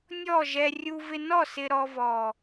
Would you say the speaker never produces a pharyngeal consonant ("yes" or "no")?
yes